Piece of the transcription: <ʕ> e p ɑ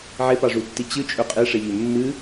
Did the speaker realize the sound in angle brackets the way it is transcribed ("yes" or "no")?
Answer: yes